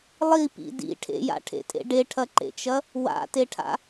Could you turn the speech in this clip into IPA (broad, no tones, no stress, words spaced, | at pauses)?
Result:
lˠipḭ dḭ ʈʰḛja̰ʈʰḛtʼḛ ɖeʈʰɐǃḛt͡ʃɐ | wa̰teʈʰa̰